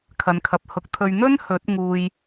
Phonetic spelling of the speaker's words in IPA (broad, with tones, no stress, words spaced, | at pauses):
kʰɐ˨nkʰɐ˨p̚hʊ˨˥k̚t̪ʰɵ˧ɥ n̪ɵ˥n hɵ˨˥t̚ŋuː˧j